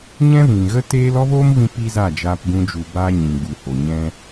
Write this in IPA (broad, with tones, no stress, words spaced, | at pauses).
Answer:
ɲɛ̃˦vĩ˨ɣə˦teː˦l ɔ˦voː˦mvĩ˧ pi˧ za˦˨d͡ʒaː˧p ɡũ˦d͡ʒu˧baː˦ ɲĩ˨ɡ͡bu˨ho˨ ɲɛ̃˦